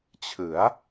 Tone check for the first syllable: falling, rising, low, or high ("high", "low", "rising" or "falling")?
rising